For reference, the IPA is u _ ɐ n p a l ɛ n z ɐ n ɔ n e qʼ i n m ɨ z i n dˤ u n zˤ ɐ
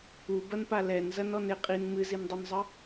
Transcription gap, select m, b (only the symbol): b